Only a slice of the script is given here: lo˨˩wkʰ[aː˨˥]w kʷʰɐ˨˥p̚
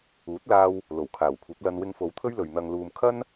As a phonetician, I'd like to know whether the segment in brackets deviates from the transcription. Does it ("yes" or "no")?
yes